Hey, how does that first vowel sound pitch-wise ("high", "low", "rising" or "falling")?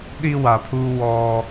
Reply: high